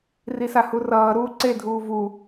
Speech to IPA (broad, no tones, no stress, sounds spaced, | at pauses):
r i s a h u r ʌː ɾ uː ǀ e dʱ uː v u